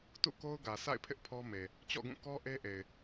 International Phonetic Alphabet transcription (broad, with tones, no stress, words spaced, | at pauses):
tṵ˦˨ ko˦ʊ̯ɡä˨ sa̰˦˨ɪ̯pʰɪ˦ʔ pʰɔ˦me˨ | t͡ɕɔ̰˦˨ɡũ˦˨ kɔ˦ ʔe˦ʔe˨ɪ̯